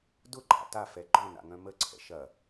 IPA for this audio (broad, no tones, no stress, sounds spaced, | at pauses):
d ʊ ǃʼ a̰ t a f ɛ ɡ͡ǃ ɔ̃ n a̰ ŋ œ̃ m ə ǀʰ ɛ̰ ʃ ɐ